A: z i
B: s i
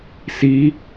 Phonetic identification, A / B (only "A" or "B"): B